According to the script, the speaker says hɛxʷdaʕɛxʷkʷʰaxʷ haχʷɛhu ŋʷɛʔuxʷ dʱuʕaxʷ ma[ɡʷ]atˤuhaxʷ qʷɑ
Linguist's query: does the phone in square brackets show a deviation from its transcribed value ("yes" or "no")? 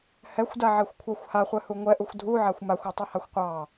yes